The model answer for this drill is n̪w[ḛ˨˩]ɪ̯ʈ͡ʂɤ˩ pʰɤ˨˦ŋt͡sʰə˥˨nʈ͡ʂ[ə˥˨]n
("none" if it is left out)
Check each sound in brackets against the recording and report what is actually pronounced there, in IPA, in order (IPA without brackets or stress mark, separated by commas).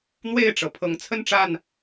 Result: e˥˨, a˥˨